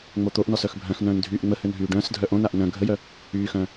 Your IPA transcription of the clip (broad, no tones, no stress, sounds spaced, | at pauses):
ŋ͡m o t̪ o ʔ n ɔ s œ x bʱ œ̃ x n̪ œ̃ː n dʱ yː ʔ ŋ͡m ə h ø n ɦ yː ɖ œ̃ː s dʱ œ ʔ õ n a ʔ n œ̃ ɡʱ ə j œ | yː x œ̃ː